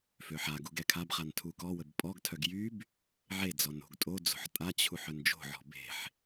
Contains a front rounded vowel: yes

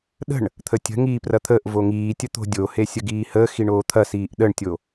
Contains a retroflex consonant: yes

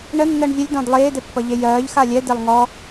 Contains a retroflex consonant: yes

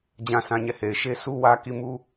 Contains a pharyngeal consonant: no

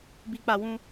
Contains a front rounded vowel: no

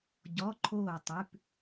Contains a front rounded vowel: no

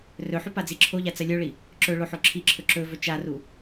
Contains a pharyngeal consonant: yes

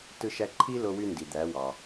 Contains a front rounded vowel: yes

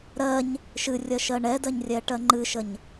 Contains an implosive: no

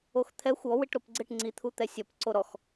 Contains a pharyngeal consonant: no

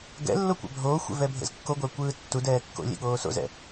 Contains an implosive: yes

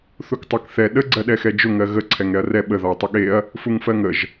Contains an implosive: yes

